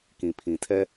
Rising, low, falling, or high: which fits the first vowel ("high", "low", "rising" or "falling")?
low